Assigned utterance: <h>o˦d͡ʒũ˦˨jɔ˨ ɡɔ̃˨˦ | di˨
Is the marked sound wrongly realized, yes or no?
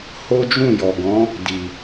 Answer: no